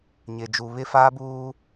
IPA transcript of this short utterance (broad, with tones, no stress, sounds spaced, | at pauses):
ɲ ɪ˨ d͡ʒ u˨ β ɪ˦ f aː˦ b uː˦